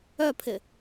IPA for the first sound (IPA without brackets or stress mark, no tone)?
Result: œ